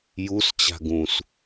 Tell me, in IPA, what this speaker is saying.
jus t͡ɕa̤ɡũs

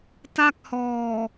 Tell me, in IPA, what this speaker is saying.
ta˥˩k̚hɔː˨˩

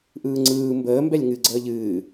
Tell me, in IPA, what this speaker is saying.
ʔɯːŋ͡ǀɯː mbəː mbɛlʲŋɨ ɡ͡ǀəːʎɨː

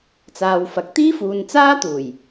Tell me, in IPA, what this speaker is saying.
t͡saː˨w fɐ˨k̚t̪iː˥fuː˨n t͡saː˥t̪uː˨˩j

